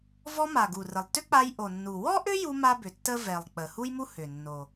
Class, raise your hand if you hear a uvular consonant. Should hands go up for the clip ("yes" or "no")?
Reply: no